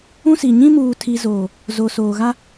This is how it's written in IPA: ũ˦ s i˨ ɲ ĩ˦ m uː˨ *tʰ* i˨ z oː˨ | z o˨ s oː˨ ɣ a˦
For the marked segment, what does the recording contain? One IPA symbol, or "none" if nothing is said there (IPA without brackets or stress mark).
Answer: tʰ